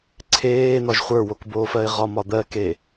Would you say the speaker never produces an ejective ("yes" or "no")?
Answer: yes